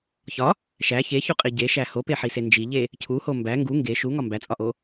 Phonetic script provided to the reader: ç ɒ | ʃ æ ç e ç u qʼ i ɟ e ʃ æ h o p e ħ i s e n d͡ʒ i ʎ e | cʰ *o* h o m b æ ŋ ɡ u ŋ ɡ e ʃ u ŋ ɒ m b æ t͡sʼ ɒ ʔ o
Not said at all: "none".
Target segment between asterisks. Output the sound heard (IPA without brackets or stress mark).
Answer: u